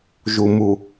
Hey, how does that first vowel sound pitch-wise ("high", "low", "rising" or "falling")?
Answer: low